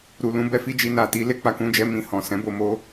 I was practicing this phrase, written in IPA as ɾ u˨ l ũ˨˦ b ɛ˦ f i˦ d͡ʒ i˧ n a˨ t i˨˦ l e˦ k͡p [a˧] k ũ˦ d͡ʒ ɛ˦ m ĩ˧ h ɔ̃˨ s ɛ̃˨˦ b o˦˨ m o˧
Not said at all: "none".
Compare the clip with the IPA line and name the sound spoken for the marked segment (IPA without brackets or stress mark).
a˧